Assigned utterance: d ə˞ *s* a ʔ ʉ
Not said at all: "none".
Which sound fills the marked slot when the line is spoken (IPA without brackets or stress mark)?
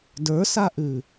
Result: s